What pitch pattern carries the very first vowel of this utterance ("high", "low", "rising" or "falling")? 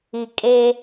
low